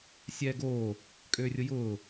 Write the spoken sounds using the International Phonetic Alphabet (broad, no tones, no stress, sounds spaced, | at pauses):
sʲ ɛː ɡ oː | kʼ øː rʲ ʊ j ʊː